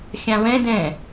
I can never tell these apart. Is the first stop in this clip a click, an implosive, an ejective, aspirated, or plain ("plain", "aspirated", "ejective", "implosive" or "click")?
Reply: plain